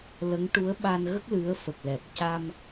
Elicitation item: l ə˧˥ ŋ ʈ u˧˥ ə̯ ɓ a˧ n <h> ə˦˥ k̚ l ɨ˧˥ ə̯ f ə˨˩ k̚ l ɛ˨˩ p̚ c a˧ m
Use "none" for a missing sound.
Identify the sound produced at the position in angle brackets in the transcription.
ɣ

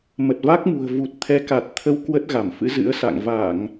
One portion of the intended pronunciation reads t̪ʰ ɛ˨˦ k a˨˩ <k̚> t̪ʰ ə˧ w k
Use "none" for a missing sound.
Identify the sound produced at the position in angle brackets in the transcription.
t̚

